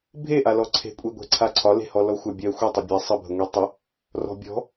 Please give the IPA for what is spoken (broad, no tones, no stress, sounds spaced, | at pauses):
bʱ e ʔ a l ɔ ǀʰ e̤ kʷʼ e ɡʷ ɛ̤ ǀʰ a ǀʰ ɒ l e̤ h ɔ l ɔ xʷ a bʲ ɜ xʷ ɛ tˤ ɜ bʲ a sˤ ə bʱ ə ŋʷ e tˤ ə | r ɔ̤ bʲ ɔ̤